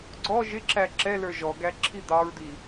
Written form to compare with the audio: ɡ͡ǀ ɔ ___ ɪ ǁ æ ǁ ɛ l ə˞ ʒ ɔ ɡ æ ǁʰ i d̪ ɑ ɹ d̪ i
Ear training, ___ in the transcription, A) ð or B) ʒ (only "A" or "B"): B